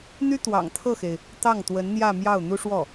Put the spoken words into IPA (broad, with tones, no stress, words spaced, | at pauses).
n̪y˥ t̪wɑ̰˨˩ŋt̪ʰɤ˥˩xe˩ɪ̯ | t̪ɑ˥˩ŋ t̪wə˧˥nn̪jä˥˧ mjɑ˥˩ʊ̯ n̪u˥ʂwɔ˥˩